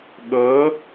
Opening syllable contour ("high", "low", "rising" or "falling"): rising